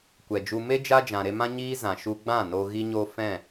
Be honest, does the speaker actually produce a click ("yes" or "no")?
no